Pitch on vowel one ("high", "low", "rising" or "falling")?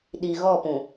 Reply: low